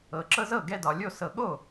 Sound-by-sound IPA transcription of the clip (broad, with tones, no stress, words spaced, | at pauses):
ɤ˨˩ ǁɤ˦zɤ˥˩ ɡɛ˦dɒ˩˧lʲo˥˩ sɤ˨˩ɠo˥˩